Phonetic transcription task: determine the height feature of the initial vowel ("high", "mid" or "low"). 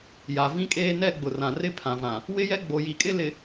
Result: low